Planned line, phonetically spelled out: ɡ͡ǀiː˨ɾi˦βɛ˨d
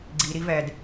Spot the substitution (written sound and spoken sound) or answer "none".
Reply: β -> v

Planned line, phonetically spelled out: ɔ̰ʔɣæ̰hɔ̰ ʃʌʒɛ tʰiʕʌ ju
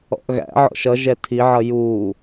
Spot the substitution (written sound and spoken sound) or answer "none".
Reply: h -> ʕ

